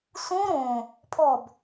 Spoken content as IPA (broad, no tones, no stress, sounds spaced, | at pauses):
s ũ ɾ õ | pʰ ɔ b